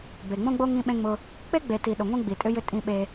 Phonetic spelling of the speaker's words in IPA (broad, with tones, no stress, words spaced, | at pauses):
be˨ŋ͡mõ˦ɡ͡bo˦ ŋĩ˦ɓẽ˦ŋ͡mʊ˦ | k͡pe˦ɡ͡be˨ti˨ ɗʊ˨ŋʷẽ˦ ɡ͡bi˨tʼʏ˦jʏ˦ tʼĩ˦ɓe˦